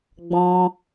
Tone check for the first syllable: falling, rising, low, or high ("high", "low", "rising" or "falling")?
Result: high